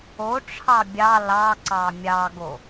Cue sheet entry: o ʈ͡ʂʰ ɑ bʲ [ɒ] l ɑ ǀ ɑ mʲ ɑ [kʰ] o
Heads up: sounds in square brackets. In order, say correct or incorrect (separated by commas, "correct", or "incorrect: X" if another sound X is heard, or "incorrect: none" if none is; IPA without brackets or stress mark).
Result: incorrect: ɑ, incorrect: ɡ